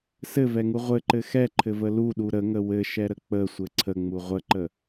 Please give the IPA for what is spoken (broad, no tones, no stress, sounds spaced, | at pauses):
s ɘ v ɛ ŋ u ʁʷ ɘ ǃ ɘ x ɛ ǃʰ ɘ v ə l u ɗ u ɾ ə ŋ ə w ɘ ʃ ɛ ɾ ə k͡p ə sʷ ɘ ǀʰ ə ŋ͡m u ʁʷ ə ǃ ə